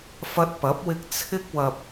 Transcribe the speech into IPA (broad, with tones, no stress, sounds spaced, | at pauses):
f ɐ˧ t̚ p ɐ˨˥ p̚ w ɪ˧ k̚ t͡sʰ ɪ˥ k̚ w ɐ˧ p̚